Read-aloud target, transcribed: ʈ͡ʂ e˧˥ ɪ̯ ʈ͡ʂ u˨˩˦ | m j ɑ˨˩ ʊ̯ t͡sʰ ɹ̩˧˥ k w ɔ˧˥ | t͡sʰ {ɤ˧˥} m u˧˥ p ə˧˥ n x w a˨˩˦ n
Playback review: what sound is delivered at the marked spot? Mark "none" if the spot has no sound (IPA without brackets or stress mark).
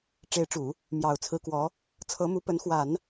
ɤ˧˥